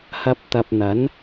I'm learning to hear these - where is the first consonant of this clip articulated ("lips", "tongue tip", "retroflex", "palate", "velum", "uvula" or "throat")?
throat